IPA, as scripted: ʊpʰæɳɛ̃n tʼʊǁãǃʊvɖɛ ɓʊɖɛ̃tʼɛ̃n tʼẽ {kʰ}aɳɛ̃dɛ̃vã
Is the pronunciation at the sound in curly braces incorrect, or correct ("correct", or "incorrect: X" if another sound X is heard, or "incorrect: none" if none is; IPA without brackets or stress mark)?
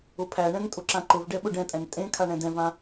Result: correct